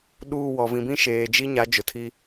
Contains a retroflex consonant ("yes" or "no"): no